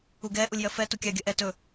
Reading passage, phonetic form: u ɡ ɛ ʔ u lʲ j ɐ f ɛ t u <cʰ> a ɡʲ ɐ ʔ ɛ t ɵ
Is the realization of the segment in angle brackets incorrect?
yes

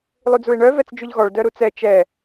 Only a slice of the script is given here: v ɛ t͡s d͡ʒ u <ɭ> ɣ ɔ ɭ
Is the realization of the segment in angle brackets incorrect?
yes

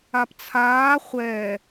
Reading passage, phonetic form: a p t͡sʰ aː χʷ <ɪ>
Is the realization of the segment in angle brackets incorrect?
yes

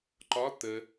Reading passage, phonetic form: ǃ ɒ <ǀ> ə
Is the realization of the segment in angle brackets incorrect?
yes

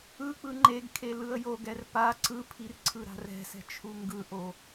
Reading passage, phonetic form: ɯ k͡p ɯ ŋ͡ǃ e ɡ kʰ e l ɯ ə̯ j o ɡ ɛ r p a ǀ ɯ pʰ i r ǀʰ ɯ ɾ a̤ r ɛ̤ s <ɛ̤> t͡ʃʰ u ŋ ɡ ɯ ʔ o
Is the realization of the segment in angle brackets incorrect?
no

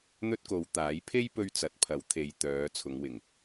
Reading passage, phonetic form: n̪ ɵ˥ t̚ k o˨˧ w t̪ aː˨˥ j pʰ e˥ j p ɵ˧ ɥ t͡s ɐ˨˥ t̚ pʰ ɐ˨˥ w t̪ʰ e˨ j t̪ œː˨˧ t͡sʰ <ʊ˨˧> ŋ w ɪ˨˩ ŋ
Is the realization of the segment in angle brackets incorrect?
no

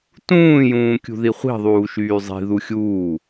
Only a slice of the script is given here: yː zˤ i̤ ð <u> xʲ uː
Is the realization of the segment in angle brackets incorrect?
no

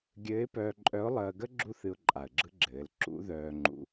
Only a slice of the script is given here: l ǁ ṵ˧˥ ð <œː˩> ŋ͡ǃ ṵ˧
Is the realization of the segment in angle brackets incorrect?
yes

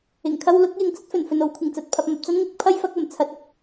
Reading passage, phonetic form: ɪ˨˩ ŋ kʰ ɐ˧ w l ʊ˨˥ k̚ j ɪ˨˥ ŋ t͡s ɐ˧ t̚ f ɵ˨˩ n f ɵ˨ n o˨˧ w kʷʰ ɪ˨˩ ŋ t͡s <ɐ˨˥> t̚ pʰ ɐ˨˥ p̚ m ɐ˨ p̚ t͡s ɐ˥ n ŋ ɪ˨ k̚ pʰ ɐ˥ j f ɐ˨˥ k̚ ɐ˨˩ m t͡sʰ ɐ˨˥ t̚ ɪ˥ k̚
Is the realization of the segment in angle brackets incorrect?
yes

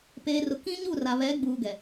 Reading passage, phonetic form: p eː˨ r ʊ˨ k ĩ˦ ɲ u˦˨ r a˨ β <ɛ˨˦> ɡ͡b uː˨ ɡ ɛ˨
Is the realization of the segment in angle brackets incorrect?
no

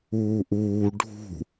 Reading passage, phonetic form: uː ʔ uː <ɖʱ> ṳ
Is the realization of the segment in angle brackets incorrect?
no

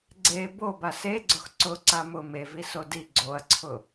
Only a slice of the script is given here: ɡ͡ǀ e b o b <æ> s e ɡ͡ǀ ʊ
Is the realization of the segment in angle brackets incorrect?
yes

